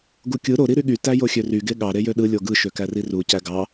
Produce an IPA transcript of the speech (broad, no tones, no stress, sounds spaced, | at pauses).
ɡ u kʲ ɯ ɾ o ɾ i ɾ y ɠ y t æ j o xʲ ø r y ɡ e ɠ ɑ ɾ e j ø ɗ ɯ lʲ o ɡ ɯ ʃ ø k æ r i r u c æ ɡ ɑ